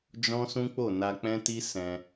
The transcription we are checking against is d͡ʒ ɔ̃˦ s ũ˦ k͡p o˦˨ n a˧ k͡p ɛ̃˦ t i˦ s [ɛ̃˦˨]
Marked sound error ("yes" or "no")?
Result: yes